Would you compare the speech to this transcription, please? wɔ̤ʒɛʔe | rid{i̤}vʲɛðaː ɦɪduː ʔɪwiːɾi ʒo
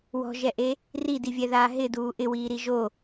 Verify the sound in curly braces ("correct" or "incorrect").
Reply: incorrect